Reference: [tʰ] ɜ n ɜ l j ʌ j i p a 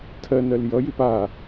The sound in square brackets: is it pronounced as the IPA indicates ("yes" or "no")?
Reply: yes